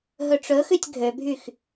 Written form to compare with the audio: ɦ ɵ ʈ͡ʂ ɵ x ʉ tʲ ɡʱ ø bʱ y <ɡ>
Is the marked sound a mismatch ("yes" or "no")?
yes